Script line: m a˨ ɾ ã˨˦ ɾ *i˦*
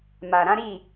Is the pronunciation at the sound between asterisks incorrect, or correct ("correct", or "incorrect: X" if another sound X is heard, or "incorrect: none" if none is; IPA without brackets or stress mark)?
incorrect: i˦˨